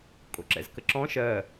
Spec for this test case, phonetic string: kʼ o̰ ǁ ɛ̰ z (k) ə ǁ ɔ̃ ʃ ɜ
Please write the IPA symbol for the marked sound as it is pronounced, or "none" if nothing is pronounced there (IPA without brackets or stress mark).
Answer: k